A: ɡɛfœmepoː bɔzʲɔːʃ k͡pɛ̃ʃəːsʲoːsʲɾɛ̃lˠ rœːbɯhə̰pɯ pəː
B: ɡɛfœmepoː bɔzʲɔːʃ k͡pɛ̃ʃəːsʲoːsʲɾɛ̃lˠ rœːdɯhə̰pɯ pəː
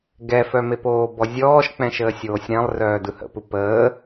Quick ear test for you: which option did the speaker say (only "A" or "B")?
B